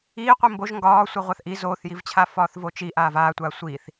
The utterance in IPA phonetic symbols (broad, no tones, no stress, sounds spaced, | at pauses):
iː qʷ i m b o ʒ ŋ ɡ ɒː sʷ i ʁʷ a θ ʔ i z oː θ j i v t͡ɕʰ a f ɒː θ v o t͡ʃ i ʔ aː v aː tʷ aː sʷ iː θ